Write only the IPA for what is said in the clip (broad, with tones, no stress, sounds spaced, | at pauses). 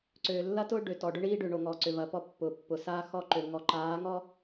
ǀ øː˨ lː ɐ˦ t ʊː˦ ɖ ø˨ t ɔ˨ ɖ ʊ˦ ɳ iː˦ ɖ ʏ˨ ɳ o˨ ŋ ɔ˨ ǀ ʏ˨ v ɐ˨ p ɔ˦˨ pː ʊː˨ pː ʊ˨ s aː˦ x ɔ˦ ǃ ø˨ ŋ ɔ˨˦ ǃ aː˨˦ ŋ ɔ˦